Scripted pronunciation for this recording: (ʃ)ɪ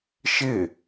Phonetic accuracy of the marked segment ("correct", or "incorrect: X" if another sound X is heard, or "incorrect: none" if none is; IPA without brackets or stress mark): correct